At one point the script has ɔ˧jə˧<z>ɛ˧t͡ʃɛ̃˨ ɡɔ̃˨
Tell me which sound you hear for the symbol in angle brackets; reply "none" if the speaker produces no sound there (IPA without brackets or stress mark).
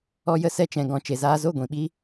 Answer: s